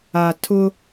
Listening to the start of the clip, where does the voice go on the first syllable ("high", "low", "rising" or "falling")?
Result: low